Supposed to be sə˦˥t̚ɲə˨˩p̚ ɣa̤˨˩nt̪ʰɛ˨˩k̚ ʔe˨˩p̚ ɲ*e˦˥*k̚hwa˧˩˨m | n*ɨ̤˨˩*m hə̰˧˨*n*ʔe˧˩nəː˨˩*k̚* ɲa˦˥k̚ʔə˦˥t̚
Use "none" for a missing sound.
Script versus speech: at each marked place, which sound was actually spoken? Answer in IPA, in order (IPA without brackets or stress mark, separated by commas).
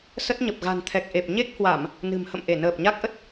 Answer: e˦˥, ɨ̤˨˩, m, p̚